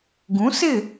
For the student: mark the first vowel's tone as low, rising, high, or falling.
rising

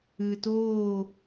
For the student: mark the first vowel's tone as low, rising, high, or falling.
low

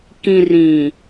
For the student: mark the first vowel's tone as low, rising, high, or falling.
low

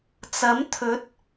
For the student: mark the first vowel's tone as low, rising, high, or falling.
rising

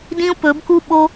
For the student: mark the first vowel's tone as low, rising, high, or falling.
high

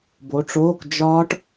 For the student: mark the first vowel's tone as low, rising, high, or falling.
rising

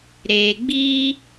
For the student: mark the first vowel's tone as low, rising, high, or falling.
low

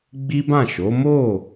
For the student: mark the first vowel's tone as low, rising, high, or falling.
high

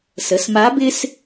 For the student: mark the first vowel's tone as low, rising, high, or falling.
rising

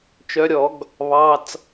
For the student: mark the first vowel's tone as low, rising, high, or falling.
rising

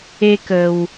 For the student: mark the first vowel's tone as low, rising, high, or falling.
high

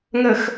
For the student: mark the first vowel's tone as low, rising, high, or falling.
low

